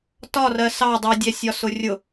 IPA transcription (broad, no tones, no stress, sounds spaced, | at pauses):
t ɒ r ɜ s ɑ dˤ i dʲ æ sʲ ɒ s ʊ rʲ ʊ